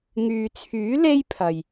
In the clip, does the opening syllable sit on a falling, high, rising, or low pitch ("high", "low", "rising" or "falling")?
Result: low